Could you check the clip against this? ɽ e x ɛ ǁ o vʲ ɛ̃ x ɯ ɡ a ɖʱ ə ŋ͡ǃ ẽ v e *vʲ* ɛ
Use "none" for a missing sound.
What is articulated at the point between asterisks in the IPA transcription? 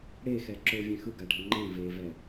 v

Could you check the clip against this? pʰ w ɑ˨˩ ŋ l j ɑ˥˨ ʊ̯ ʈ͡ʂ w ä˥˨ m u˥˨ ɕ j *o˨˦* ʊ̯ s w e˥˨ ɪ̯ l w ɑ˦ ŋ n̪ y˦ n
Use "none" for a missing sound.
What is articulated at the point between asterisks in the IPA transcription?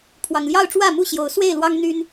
o˨˦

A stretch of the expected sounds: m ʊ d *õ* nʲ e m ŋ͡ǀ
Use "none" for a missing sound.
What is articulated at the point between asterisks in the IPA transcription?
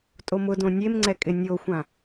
õ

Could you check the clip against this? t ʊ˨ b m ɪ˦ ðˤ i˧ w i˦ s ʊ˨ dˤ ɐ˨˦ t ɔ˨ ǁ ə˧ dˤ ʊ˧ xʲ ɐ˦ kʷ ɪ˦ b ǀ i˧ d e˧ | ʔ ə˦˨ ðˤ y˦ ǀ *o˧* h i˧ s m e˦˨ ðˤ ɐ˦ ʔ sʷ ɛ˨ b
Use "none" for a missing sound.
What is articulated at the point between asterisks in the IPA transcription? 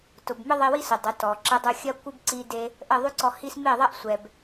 ɔ˧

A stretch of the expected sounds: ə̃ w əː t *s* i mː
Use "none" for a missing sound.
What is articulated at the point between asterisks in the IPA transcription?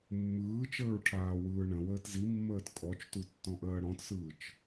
z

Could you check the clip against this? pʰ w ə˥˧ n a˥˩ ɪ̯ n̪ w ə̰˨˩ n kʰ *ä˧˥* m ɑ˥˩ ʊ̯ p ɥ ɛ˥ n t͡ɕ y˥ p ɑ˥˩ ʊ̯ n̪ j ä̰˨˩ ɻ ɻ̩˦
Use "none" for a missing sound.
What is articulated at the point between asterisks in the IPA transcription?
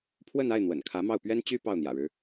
ä˧˥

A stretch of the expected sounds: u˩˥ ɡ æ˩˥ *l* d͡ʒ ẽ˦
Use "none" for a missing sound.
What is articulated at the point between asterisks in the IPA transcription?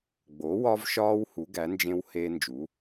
n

